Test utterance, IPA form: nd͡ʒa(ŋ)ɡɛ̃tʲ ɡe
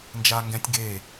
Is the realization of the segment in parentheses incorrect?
no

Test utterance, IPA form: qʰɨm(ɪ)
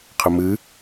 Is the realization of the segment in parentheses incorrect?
yes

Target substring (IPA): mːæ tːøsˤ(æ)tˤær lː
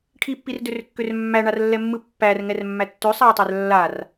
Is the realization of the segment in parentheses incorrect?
no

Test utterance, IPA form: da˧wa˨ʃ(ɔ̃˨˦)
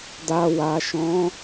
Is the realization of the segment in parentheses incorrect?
no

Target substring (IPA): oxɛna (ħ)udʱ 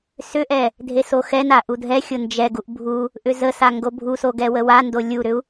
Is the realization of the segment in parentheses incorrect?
yes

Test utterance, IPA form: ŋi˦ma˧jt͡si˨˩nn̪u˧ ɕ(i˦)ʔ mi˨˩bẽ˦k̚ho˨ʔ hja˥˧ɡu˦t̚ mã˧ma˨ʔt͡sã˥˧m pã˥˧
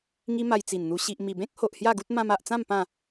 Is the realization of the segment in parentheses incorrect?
yes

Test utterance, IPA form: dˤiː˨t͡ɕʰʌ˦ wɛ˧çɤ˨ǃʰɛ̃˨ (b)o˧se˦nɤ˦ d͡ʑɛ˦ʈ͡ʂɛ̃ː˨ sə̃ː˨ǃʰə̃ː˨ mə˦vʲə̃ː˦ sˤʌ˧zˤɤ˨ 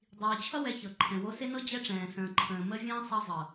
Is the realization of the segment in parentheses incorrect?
yes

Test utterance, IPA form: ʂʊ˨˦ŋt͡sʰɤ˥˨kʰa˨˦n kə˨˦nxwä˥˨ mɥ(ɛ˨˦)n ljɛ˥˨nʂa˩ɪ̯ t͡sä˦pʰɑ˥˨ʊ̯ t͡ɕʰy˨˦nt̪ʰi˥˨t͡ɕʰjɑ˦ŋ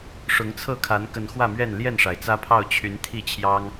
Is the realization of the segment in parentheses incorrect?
yes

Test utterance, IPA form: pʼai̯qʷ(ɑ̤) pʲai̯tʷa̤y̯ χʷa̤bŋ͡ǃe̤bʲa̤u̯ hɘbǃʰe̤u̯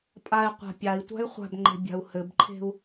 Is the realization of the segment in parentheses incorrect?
yes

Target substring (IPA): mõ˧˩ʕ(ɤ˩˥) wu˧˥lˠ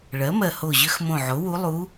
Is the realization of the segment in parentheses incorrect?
yes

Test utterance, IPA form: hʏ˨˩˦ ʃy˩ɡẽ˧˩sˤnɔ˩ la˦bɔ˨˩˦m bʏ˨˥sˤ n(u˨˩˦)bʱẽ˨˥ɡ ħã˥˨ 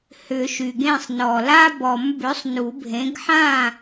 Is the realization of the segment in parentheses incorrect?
no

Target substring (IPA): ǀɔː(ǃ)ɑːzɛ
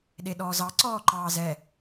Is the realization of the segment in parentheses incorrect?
no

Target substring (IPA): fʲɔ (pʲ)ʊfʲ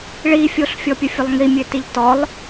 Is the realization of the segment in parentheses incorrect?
no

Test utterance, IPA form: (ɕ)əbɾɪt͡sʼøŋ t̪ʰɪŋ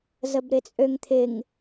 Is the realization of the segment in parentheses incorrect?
yes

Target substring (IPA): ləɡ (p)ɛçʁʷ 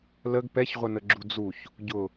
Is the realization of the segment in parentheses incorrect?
no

